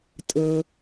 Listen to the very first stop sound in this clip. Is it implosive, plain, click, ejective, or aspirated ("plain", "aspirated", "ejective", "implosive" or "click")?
ejective